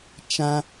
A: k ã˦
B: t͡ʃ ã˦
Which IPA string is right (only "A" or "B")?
B